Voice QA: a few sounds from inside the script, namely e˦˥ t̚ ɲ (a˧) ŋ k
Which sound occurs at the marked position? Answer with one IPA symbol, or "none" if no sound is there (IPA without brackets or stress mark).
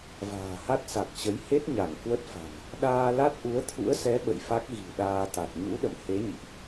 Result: a˧˩